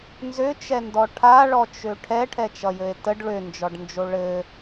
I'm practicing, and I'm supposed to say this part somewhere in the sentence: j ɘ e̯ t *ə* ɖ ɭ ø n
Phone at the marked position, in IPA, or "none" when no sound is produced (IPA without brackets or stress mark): ə